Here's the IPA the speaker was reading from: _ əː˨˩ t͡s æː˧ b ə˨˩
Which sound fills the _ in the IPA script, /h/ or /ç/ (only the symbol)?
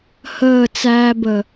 h